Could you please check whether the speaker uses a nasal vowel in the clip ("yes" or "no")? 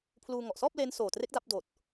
no